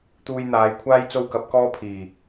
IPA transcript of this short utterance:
t̪uː˧jn̪aː˨˧jkʷʰaː˥j t͡so˥wkɐ˨˥p̚kɔː˥ pʰiː˨˩

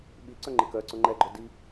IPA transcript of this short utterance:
ɓiǀœŋ͡ǃɪ kœǀʊ ŋ͡ǃɛɡ͡ǃœdi

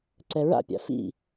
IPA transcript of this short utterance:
ǀɛɹa̰pʲa̰ fḭ

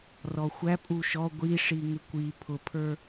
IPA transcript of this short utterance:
rɔxʷæ pʼuʃɔ ɡʷiʂi ŋɪkʷi pʰʊpʰə˞

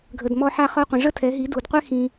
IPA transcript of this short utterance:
ɡʱə˧d mɔ˧ħa˧χɔ˧ qʷĩ˨ʐə˦tʰɛ˨˦ɦi˨˦ du˨dqʷɛ˦ xĩ˧

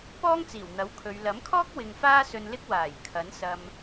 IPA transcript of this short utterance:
pɔː˥ŋt͡siː˨˩wn̪ɐ˨˥w kʰɵ˨˧ɥ lɐ˨˥mkʰɔː˥k̚ wɪ˧ŋfaː˥ sɵ˧nlɪ˥k̚ waː˨˩j kʰɐ˨˥nsɐ˧m

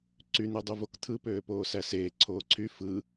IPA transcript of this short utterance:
ǀyn̪edˤyvok t̪ʰɯpøː poːsæseː ǀʰoːǀʰy fɯ

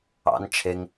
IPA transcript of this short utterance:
ɑ̰n t͡ʃʰeŋ

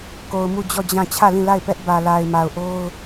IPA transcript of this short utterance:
ko˨ʊ̯mu˦˨d͡ʑɔ˦˨ d͡ʑã˦˨ t͡ɕʰä˦˨lĩ˦˨la˦˨ɪ̯pɛ˦ʔ bä˨la˨ɪ̯ma˨ʊ̯ʔo˦ʊ̯

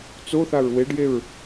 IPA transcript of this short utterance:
t͡soθaɹ weɖjeɹ

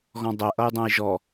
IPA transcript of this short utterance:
ɣɔ̃dˤɛ ʔʌjdˤɛ̃jʒɔ

